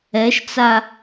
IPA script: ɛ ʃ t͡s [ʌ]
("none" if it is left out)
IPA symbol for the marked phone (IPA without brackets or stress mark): a